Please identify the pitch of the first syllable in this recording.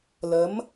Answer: rising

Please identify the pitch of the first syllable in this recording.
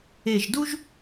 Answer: low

